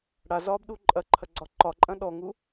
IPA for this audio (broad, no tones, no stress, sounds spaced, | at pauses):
ɽ a z ɒː b ɗ u ǃʼ ɐ ǃʰ ɐ ɡ͡ǀ ɒ ǃ ɒ ǃʼ ɐ̃ ɗ ɔ ŋ u